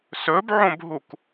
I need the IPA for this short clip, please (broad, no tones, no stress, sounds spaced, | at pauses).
s ɵ b ʕ õ b ɦ u k